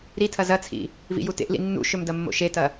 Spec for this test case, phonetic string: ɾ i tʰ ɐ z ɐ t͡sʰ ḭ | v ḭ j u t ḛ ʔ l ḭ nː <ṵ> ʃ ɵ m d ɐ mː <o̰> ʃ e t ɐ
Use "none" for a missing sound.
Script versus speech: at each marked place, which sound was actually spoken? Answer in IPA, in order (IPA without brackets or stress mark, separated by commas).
ṵ, o̰